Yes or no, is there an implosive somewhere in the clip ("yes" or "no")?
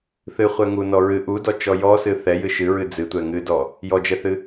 no